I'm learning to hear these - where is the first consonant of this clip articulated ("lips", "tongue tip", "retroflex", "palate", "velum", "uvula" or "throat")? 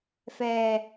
lips